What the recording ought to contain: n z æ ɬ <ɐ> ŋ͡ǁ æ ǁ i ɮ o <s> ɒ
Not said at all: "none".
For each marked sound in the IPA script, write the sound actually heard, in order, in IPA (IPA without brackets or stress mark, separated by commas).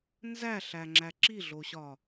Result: æ, ɕ